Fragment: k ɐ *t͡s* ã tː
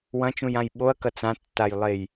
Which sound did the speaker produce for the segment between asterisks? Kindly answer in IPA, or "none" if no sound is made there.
t͡s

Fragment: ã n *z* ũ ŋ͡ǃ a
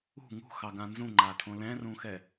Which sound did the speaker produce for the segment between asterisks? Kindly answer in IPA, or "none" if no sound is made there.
z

